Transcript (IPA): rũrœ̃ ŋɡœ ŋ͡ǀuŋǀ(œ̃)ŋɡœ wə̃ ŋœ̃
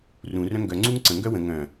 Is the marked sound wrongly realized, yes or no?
yes